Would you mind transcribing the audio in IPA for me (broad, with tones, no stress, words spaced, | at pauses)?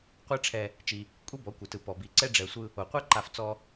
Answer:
qʷɛ˦ʈ͡ʂʰɛ˧ | t͡ʃi˧ | kʷʼi˦bɔ˨˦ kʷɯ˨ tɯ˨ pɔ˨bi˨ǀɛ˦ ɖ͡ʐɛ˧sʷɯ˦ | o˨qʷɛ˦ǃa˧ft͡sɔ˧